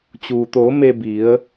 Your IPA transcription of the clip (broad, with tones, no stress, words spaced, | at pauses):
t͡ɕuː˩t̪oː˩˧ me˧bi˩˧ə̯